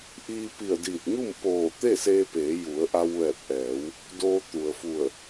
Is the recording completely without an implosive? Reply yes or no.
yes